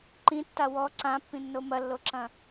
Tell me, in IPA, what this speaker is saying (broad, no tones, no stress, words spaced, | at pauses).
ǃĩtːa wɔ ǀãpːĩnːo mɐlːoǁɐ̃